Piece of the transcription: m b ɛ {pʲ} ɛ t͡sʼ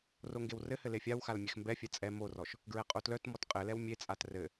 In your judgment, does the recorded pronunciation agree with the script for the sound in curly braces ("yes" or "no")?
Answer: no